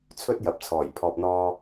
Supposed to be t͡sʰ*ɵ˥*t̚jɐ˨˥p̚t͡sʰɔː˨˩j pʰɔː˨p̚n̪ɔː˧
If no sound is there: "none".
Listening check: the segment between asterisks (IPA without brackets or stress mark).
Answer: ɵ˥